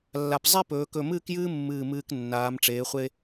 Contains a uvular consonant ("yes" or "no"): yes